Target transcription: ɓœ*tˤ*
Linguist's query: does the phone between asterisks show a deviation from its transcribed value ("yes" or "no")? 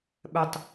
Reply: no